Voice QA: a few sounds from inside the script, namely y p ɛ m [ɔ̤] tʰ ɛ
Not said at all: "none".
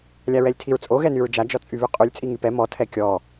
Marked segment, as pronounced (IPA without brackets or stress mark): ɔ